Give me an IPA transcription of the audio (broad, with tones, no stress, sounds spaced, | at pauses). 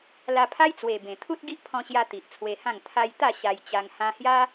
l a˧ pʰ a˦ j t͡s w e˨˩ b ẽ˨˩ t̪ʰ u˦ t̚ ɡ i˦ ʔ pʰ ɔ̃˧ ɕ j a˧ t̪ i˨ ʔ t͡sʰ w e˧ h ã˥˧ ŋ t̪ʰ a˧ j t̪ a˥˧ ɕ a˧ j t͡ɕ a˧ ŋ h ã˧ h j a˦